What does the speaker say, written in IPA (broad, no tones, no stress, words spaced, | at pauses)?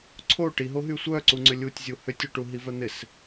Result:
ǀʰo ʈiɦoɦy sʷœǀu ŋ͡ǀʏlʲutʲzʲu hʏtʲuʈu ɦivœn̪ɪs